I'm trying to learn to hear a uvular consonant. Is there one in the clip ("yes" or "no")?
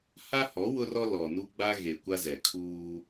no